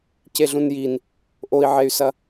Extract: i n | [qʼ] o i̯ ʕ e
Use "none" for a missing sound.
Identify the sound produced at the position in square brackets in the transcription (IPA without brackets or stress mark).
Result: ʔ